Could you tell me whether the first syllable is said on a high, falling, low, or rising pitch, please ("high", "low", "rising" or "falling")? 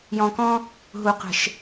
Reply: low